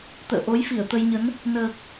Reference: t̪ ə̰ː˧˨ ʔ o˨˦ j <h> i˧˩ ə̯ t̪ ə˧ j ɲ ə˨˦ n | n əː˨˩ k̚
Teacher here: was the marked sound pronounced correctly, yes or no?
no